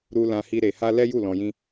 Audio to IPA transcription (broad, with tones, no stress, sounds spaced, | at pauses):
ɾ u˦ l ã˦ h i˦ ɾ e˧ h a˦ l ɛ˦ j u˦˨ l ɔ̃˧ j ĩ˦